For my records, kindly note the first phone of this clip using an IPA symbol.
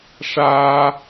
ʂ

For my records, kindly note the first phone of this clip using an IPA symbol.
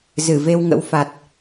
z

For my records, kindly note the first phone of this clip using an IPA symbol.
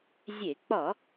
zʲ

